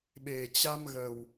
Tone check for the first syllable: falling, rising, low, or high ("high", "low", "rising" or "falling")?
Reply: low